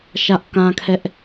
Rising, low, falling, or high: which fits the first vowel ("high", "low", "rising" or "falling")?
high